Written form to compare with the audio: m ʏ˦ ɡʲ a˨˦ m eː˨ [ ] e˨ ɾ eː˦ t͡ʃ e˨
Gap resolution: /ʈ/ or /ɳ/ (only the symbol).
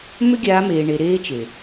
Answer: ɳ